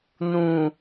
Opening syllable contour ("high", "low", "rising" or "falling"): low